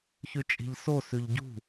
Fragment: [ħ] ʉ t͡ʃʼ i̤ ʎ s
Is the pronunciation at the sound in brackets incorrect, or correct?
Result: incorrect